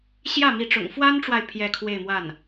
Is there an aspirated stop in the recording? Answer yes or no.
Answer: yes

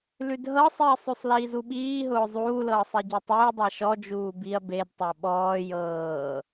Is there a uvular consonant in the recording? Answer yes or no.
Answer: no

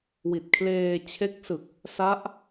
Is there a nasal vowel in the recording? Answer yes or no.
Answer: no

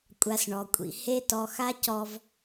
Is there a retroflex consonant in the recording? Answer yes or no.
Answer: yes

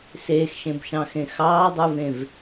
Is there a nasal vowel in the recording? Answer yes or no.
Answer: yes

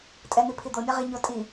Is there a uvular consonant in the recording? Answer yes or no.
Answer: yes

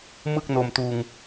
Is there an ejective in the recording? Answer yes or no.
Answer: no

